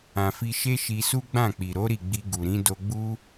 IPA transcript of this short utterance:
ã˨ f i˧ ʃ e˦ ʃ i˧ s u˦ ɡ͡b ã˦˨ k͡p i˨ ɾ o˨˦ ɾ i˦˨ ɡ͡b i˧ ɡ u˨ ɾ ĩ˨˦ d o˧ ɡ͡b u˦

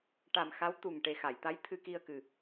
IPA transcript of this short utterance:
ʈ a˨˩ m x a˧˥ w t̪ u˨˩ ŋ ʈ e˨˩ x a˨˩˨ j t̪ a˧˥ j t̪ʰ ɨ˧ k i˧ ə̯ k ɨ˨˩

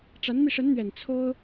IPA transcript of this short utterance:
ʈ͡ʂ a˧˥ n m i˧ ʂ ə˧˥ n n̪ ɥ ɛ˨˩ n t͡sʰ o˥ ʊ̯

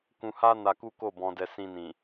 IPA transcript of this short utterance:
k ũ˧ h a˦ n a˧ k u˦ k o˦˨ b ɔ̃˧ d ɛ˧ s ĩ˧ n ĩ˨

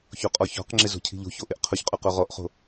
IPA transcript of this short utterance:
ç o qʼ ɔ ç ɔ̤ q ŋ͡ǁ ɪ z o̤ cʰ i̤ ʎ o̤ ç o ʔ ɪ ʔ qʰ ʊ ç qʼ ʊ q o ʁ ɔ ʔ χ o̤

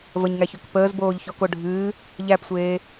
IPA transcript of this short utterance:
v ə ɲ ŋ æ ç ø k p əː z b oː ʎ ç ɔ k o ɖʱ ɨː | ʎ æ p sʷ eː

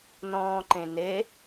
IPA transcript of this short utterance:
n ɔ̃ː ǃ ẽ n e

